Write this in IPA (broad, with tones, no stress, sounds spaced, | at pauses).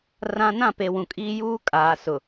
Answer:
r ã˦ n ã˦˨ p e˨ w ũ˨ kʼ iː˦ j uː˦ kʼ aː˨ s ʊ˨